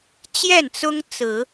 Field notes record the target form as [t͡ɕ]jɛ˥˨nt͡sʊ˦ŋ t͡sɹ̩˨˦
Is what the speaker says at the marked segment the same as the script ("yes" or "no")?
yes